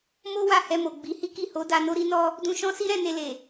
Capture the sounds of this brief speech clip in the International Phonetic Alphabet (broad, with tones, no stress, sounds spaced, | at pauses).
m o˦ w a˦˨ h ɛ˧ m o˨ ɡ͡b i˨˦ h i˦ k i˦˨ h o˨˦ d a˧ n o˦ ɾ i˦ n ɔ˦ | d ũ˧ ʃ ɔ̃˦ s i˦ ɾ ɛ̃˧ n e˧ l e˨